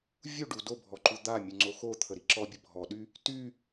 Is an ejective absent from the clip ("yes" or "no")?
yes